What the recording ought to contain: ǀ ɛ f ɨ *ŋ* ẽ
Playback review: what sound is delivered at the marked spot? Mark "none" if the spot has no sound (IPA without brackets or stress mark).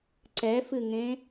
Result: ŋ